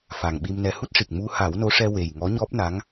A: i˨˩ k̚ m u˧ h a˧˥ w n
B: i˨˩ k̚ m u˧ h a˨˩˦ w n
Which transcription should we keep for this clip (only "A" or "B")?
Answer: B